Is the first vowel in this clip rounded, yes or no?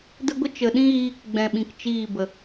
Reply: no